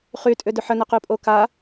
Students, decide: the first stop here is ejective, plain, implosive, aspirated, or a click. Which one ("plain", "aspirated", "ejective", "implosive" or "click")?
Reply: ejective